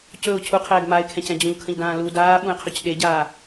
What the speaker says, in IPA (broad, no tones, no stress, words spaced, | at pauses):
cɵʊ̯ cʰuqʰɛːɡ maɪ̯kʰɛ̃cɛ̃ d͡ʑũʎkʰə̃ʎdãː lu daːɓũɪ̯qʰɵc ɗeɟaː